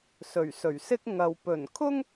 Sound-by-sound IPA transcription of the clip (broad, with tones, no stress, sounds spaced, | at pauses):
s ɵ˨˩ ɥ s ɵ˨˩ ɥ s ɪ˥ k̚ ŋ ɐ˨ w p ɵ˨˩ n kʰ ʊ˥ ŋ